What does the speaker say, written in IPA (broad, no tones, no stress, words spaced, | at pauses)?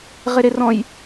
ʁɪɾɪ rɔ̃j